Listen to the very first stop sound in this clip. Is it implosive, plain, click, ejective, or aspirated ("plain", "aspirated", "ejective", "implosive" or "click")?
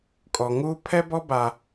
ejective